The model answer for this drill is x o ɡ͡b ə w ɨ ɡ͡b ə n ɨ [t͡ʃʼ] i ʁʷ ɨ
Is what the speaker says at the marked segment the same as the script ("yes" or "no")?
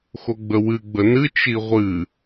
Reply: no